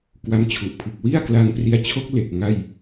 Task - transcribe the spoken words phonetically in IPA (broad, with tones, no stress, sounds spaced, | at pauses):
k w a˧ m t͡ɕʰ u˨˩ ʔ pʰ ɯ˨˩ k̚ w i˥˩ a̯ k l a˧ ŋ p r i˧ a̯ t͡ɕʰ o˦˥ k̚ l e˨˩ k̚ ŋ a˥˩ j